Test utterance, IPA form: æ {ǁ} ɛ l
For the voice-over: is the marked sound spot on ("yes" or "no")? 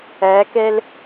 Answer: no